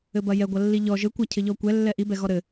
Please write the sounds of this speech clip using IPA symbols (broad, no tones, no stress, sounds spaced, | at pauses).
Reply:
ɘ b ɐ j ɛ ɡʷ ɐ lː i ʎ ɔ ʒ ɘ kʷ ɐ cʰ ɘ ʎ ɔ kʷ ɛ lː ɛ ʔ i b ɛ ɣ ɔ ɾ ɘ